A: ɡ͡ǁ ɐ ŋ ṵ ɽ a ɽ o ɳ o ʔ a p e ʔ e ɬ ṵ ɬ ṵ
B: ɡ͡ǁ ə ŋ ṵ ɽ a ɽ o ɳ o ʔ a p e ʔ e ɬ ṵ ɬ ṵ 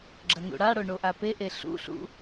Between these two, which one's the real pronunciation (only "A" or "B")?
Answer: A